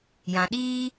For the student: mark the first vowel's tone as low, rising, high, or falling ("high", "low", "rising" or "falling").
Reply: low